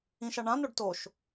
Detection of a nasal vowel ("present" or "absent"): present